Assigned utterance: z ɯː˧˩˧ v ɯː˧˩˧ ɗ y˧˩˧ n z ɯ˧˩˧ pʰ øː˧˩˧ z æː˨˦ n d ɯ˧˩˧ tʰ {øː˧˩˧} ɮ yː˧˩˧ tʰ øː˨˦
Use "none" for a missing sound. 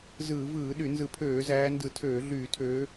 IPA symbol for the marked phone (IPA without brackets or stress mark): øː˧˩˧